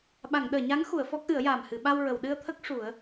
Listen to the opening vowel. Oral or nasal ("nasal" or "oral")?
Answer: oral